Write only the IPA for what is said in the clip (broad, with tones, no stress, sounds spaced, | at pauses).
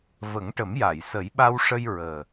v ə˨˩˦ ŋ ʈ ə˨˩˦ m j a˨˩˨ j s ə˨˩˦ j ɓ a˧ w ʂ ə˧ j ɹ əː˨˩